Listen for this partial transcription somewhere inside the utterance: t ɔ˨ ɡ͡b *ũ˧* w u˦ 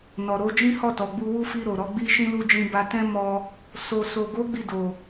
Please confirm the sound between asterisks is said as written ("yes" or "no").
no